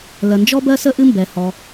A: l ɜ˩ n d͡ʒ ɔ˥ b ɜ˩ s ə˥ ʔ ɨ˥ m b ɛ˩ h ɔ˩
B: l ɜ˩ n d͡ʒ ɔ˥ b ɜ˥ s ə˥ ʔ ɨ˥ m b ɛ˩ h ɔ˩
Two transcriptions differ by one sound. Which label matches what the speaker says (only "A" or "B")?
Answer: B